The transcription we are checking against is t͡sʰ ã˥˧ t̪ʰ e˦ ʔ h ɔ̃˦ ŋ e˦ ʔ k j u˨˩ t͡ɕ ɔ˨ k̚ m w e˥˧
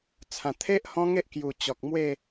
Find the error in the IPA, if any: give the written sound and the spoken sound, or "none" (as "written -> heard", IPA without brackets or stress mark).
ã˥˧ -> ã˨˩